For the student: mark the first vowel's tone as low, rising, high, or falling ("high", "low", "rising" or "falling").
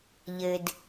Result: low